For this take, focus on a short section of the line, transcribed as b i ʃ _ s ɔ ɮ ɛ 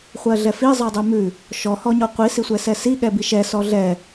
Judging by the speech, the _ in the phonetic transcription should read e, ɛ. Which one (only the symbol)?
ɛ